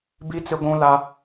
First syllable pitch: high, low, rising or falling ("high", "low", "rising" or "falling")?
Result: high